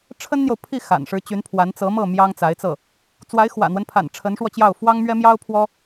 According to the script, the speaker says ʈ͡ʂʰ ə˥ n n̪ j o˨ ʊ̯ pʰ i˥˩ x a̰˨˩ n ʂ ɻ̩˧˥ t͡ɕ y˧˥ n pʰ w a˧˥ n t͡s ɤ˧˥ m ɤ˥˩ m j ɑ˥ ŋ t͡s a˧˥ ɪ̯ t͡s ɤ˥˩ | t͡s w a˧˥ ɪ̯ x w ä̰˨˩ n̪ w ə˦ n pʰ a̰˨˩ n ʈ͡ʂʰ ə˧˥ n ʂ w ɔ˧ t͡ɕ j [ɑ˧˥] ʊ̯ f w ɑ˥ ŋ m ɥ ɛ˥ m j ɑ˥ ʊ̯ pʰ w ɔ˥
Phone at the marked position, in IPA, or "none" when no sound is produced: ɑ˥˩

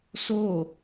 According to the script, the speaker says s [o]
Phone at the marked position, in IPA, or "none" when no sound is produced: o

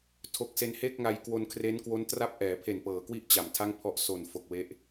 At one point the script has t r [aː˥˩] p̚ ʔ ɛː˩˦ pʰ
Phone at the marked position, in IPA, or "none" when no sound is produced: a˥˩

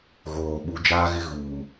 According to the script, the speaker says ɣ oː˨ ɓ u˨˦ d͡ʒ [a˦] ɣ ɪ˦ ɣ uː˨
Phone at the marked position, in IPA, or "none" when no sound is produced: aː˦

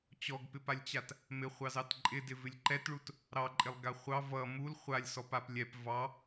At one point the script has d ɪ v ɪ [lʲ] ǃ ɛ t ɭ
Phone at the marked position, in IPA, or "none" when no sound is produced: lʲ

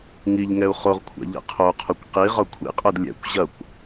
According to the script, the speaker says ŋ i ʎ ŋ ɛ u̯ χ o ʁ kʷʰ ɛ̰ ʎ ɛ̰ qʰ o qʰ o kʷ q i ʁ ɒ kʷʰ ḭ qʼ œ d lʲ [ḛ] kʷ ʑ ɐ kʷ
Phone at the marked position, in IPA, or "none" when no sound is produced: ɛ̰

